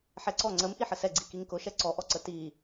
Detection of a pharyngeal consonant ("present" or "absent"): present